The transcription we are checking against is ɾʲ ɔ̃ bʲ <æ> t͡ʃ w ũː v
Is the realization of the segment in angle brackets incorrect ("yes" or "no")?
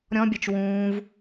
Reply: no